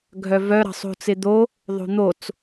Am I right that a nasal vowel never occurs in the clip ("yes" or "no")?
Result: yes